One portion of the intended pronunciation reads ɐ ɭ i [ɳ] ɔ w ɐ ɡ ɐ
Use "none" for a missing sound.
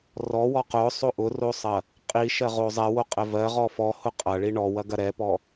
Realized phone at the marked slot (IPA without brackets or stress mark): ɳ